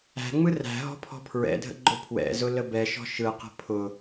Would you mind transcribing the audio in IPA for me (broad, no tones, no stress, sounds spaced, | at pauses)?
æ̤ ŋ͡m ɯ r æ̤ ɦ ɔ̤ pʰ ɔ̤ pʰ ɹ ɛ̰ dʱ ə̰ ɡ͡ǃ ʊ pʰ w ɛ̰ z ʊ l ə b ɛ ʃ ɔ̤ ʃ ɯ q ə̤ pʰ ʊ